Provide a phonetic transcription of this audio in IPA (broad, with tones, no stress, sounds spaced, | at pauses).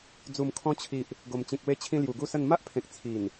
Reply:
d͡z u˨˩ m kʰ ɔ̃˧ t͡ɕʰ i˨ ʔ | ɡ o˨˩ m t͡ɕ ĩ˨ k̚ w e˧ t͡ɕʰ ĩ˧ l j u˨˩ ɡ u˥˧ s ə˥˧ n m a˦ ʔ pʰ ẽ˨ k̚ t͡sʰ i˨˩ n